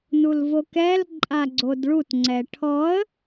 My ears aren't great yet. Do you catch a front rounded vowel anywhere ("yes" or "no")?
no